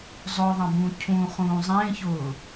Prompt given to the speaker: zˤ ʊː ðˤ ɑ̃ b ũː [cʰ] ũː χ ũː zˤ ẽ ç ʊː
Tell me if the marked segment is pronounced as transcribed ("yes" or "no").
yes